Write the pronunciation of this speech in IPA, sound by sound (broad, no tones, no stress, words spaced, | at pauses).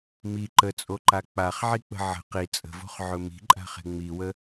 mi ǃət͡sʼoǃa k͡paχʕik͡pə̤ ʕə̤ qi t͡sʼə̤vo̤χʕɵ mi̤ǃʼa̤χe̤ ŋ͡miwə